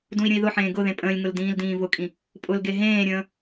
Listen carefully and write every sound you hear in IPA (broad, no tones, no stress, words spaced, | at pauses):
dũi̯ɾʲə̃i̯ðʊħẽː ɡʊ ðẽpʼə̃ːlʲŋʊl dĩːldĩːvʊkʼĩ | pʼʊlɡe ɦẽːɾʲə̃ː